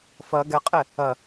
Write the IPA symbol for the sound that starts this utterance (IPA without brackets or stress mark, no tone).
f